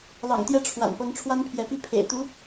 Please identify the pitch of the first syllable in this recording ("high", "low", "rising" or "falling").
low